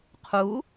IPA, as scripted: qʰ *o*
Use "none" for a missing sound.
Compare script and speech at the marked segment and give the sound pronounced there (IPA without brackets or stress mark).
u